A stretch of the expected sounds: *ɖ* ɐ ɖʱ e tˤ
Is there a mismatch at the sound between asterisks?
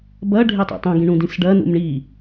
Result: yes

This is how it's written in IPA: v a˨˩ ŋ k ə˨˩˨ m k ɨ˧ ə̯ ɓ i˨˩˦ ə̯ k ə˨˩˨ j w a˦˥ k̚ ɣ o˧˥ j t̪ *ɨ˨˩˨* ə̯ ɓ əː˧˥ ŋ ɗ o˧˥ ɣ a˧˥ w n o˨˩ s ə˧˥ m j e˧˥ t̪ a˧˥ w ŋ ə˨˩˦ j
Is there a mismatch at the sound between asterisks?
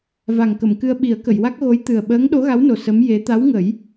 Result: yes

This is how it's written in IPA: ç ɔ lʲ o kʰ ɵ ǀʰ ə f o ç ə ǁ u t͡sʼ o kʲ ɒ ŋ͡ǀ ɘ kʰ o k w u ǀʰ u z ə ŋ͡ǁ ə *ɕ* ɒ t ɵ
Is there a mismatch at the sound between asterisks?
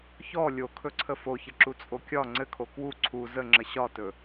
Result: no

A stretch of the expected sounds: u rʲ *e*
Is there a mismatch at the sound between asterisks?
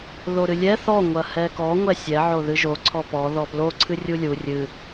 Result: yes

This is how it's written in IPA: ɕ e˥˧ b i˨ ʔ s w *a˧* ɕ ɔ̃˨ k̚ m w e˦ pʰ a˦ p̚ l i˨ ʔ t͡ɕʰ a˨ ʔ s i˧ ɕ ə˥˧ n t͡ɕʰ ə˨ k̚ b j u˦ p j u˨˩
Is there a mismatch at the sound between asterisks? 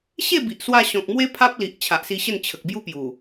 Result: no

